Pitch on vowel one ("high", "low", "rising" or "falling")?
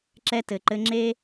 high